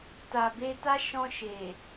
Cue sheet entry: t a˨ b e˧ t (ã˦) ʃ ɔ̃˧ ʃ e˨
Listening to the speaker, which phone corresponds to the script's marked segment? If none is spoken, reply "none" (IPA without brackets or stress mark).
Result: a˦